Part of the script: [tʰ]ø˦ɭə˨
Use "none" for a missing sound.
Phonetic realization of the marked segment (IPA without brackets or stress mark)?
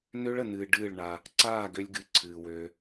n